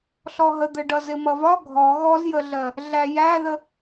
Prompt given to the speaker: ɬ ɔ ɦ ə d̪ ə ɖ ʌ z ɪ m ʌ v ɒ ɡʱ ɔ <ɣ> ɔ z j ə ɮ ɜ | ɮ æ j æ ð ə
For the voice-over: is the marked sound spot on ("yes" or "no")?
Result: yes